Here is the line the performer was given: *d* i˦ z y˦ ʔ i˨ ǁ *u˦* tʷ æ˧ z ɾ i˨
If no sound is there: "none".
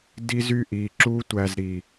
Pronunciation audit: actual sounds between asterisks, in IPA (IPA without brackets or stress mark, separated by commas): d, u˦